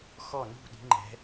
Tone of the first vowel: falling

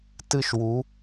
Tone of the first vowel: high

